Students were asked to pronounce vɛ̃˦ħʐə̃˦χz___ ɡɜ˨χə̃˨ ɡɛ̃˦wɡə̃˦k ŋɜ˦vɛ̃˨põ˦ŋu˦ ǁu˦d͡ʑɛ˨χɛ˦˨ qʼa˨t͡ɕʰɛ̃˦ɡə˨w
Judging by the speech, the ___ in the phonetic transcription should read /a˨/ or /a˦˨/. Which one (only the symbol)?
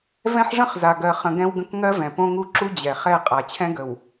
a˨